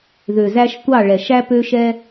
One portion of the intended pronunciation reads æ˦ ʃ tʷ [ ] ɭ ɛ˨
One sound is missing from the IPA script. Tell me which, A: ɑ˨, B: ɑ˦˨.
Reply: B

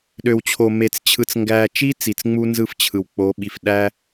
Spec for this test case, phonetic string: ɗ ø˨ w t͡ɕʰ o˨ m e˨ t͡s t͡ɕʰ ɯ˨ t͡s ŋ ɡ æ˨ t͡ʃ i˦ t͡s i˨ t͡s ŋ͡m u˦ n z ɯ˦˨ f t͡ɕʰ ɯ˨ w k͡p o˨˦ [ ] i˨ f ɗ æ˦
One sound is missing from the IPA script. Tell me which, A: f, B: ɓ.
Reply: B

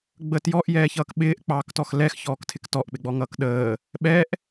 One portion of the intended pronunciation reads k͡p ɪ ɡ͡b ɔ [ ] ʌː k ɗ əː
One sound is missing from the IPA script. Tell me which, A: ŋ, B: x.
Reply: A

